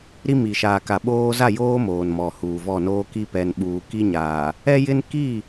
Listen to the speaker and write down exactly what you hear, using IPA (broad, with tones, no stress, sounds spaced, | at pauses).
ɾ i˦ m i˨ ʃ aː˨ k a˨ ɓ oː˦ z a˦˨ j oː˦ m oː˨ n m ɔ˨ h uː˨ v ɔ˦˨ n oː˦ k i˦ p ɛ˨ n ɓ uː˨ k i˦ ɲ aː˨ | ɛ˦ j ɪ˦ n k i˦˨